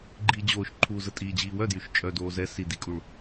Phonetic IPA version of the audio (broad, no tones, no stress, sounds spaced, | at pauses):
ɡ͡ǃ iː d͡ʑ oː ʃ ǃʰ uː z ə tʼ iː d͡ʑ iː w œ d j y ʃ t͡ʃʼ œ d oː z ɛ s i d i kʼ u ɭ